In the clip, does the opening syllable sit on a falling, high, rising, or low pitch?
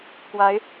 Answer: rising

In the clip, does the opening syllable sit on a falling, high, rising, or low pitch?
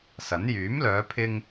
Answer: rising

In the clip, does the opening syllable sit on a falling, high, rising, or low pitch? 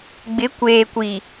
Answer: rising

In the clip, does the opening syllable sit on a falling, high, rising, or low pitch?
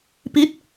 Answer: rising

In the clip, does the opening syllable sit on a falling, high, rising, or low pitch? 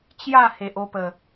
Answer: falling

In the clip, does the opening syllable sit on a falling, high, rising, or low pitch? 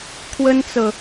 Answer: high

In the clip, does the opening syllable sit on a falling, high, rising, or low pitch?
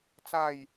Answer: falling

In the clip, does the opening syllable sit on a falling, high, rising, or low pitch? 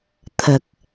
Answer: low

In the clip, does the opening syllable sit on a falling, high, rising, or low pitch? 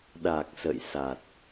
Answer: low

